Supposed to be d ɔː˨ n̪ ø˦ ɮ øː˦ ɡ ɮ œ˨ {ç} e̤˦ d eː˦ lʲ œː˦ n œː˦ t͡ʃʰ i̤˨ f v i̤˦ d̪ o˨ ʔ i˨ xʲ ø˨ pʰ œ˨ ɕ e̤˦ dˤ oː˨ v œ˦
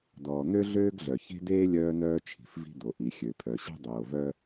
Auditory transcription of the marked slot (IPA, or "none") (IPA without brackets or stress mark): ç